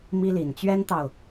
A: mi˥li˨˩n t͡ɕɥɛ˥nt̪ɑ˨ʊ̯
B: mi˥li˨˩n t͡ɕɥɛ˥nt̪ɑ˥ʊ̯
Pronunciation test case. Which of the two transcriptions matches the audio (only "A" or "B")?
A